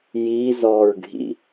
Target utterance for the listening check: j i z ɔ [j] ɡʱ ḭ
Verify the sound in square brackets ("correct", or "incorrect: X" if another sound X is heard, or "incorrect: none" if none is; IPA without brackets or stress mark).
incorrect: ɹ